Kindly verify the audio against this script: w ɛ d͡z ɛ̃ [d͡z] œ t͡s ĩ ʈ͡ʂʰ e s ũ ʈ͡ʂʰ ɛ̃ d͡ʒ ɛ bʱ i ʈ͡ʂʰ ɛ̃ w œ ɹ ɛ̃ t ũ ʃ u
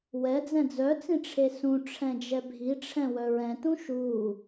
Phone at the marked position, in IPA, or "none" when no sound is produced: d͡z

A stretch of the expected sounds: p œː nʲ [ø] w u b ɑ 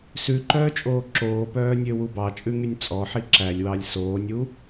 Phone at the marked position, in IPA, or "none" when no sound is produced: ø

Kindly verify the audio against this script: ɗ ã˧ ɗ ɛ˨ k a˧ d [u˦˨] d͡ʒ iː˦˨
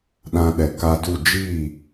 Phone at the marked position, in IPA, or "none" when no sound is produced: u˦˨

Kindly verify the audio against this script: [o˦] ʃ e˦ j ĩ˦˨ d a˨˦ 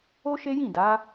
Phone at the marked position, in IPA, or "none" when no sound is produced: o˦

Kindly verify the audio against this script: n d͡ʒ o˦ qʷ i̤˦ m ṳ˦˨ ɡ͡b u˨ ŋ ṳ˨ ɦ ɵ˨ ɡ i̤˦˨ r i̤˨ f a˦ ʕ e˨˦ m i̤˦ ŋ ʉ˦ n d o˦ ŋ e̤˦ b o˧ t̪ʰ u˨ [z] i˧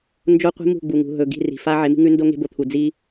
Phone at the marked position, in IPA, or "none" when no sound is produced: d͡z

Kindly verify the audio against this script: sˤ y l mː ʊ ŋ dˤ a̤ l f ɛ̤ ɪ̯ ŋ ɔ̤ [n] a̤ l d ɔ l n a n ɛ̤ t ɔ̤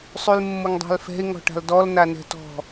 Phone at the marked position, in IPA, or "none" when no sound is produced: ʈ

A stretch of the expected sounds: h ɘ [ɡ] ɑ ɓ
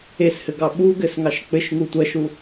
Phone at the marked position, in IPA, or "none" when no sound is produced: ɡ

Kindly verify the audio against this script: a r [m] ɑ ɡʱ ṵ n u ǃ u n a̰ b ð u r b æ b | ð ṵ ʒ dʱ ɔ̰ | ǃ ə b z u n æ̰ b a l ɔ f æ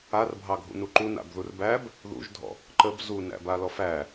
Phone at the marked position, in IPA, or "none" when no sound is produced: bʱ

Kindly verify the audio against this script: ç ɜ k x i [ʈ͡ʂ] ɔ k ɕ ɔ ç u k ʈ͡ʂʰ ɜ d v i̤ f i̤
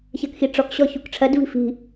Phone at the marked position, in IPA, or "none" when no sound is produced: ʈ͡ʂ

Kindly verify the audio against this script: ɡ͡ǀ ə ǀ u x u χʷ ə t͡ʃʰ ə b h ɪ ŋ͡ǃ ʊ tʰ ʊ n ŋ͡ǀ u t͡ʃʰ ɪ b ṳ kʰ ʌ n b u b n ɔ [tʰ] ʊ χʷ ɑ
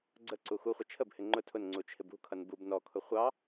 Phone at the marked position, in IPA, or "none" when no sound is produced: kʰ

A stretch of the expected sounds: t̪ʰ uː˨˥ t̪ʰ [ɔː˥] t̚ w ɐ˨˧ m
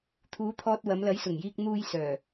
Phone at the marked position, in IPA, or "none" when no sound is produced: ɔː˧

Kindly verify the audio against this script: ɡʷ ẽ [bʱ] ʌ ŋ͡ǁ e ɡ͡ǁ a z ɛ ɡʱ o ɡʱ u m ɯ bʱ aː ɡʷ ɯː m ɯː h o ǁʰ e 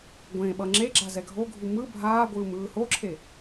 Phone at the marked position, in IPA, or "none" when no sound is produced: ɓ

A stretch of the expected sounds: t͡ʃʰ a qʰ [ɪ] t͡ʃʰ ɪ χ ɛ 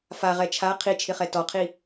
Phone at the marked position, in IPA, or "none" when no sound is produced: i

